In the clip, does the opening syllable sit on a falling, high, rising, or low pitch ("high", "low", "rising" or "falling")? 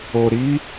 low